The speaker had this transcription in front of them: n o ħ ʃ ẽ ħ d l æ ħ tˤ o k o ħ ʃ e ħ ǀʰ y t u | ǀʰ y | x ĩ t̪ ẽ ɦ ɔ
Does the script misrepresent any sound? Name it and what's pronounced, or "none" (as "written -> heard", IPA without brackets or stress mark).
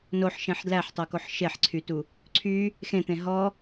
ĩ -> ẽ